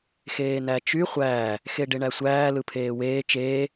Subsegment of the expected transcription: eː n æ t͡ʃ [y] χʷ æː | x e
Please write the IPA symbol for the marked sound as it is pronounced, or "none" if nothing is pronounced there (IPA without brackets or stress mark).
y